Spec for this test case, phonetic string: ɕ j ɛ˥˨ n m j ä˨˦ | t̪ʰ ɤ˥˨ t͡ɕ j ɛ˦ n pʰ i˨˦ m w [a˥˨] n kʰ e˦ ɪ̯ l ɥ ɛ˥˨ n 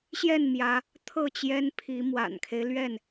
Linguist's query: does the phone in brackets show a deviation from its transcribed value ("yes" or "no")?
yes